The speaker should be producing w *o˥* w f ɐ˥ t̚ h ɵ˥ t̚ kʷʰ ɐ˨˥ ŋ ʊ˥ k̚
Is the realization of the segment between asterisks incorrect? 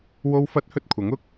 no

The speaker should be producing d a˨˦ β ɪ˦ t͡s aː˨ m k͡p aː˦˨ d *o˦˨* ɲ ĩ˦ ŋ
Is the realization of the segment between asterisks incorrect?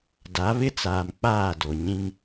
yes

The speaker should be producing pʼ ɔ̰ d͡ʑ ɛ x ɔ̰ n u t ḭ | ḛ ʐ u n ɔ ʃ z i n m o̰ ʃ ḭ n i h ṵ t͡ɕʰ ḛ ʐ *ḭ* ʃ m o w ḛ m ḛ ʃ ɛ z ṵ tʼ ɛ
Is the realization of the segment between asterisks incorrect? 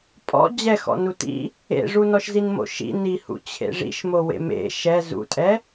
no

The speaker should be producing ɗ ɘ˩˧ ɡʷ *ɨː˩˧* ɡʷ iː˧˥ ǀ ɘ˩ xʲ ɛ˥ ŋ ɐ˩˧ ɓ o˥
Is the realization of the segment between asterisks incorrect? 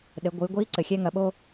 no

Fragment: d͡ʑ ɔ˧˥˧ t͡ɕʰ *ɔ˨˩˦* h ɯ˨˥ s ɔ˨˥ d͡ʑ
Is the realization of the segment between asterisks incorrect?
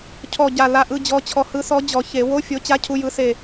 yes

